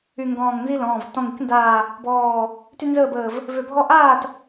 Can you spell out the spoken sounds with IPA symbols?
y˧˩ ŋ ɡ ɔ̃ː˧˩ ŋ n z i˦ l ɔ̃ː˩˧˩ v t ɔ̃˧˩ ŋ i˥˨ k n d aː˧˩ | b ɔː˧˩ | t y˦ n z əː˥˨ b əː˧˩ v | v ø˧˩ bʱ ɔ˦ ʔ aː˥˨ t

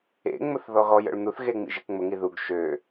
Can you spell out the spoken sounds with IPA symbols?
ḛ ŋ͡m ʊ θ ð ɔ ɣ ɔ j ə̰ ɭ n̪ u θ ɣ e ŋ͡m ḭ ʒ e k ŋ͡m ʊ ŋ i ð u ɡ ʃ ø

